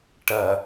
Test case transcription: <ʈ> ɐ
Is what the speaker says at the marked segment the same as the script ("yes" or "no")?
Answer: yes